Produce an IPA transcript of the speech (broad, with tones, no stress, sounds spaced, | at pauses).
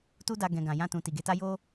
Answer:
t u˦ d a˧ ɡ ɛ̃˧ ɡ ã˨ j ã˧ t ũ˨ t i˨ ɡ e˧ t a˦ j o˦